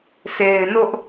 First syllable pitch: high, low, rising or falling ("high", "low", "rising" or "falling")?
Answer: low